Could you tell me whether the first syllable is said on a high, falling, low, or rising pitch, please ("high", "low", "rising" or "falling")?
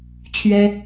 high